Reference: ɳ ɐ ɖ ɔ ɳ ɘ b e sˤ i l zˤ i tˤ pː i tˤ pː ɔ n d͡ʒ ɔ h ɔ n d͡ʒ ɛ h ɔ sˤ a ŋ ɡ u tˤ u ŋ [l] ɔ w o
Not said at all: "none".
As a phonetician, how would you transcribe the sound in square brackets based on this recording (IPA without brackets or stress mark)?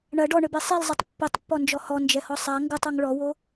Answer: ɭ